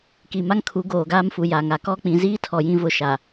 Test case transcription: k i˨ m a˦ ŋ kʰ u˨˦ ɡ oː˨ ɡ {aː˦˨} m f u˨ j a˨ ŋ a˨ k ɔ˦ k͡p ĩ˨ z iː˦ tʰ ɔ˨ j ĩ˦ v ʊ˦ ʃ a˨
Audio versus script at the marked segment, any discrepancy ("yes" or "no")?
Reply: yes